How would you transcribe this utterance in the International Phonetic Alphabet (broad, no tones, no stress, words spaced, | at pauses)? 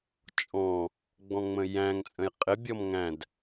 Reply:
t͡ʃʼɔ̃ | ɡ͡bɔ̃ŋ͡mə̃jæ̃ŋ t͡sʼə̃jqʼɪ bʲɔmŋæ̃d